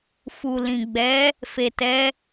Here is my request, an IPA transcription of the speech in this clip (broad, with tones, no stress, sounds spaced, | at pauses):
f u˨ l ĩ˨ ɡ͡b ɛ˨˦ | f e˨ t ɛ˨˦